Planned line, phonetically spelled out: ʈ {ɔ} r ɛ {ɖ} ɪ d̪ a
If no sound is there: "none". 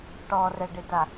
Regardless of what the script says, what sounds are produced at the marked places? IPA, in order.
ɔ, ɖ

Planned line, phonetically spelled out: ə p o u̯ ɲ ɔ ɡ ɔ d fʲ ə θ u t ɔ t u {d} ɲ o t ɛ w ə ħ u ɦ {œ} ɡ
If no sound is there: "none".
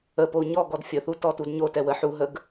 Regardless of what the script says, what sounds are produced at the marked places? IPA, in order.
d, ə

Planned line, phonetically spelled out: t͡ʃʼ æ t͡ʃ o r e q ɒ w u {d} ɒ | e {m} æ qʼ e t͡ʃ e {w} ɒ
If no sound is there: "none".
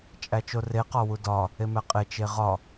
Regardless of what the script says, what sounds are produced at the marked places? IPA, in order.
d, m, ʁ

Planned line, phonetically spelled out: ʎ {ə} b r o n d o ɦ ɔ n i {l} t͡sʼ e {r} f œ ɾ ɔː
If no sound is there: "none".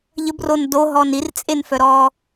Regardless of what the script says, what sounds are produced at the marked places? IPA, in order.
ə, r, n

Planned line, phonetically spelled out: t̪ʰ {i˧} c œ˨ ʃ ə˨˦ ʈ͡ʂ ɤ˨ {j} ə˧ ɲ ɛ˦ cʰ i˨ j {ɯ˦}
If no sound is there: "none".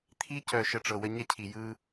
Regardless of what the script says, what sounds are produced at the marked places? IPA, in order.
i˧, w, ɯ˦

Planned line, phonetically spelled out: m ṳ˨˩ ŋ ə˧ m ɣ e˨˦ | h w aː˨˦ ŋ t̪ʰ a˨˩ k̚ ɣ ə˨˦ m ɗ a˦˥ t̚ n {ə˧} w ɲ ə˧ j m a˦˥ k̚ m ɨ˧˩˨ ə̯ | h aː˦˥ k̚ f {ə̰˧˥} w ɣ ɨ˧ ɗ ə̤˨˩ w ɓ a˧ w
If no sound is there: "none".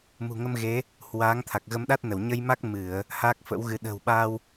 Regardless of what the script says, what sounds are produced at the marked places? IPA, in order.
ə˧˩, ə̰˧˥

